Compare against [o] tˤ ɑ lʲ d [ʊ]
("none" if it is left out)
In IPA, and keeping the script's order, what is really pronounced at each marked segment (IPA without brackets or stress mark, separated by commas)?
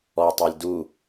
ɔ, u